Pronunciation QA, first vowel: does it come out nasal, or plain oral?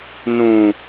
nasal